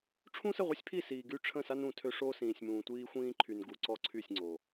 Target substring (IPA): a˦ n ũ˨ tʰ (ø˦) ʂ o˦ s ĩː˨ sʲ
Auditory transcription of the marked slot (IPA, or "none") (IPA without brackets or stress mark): ø˦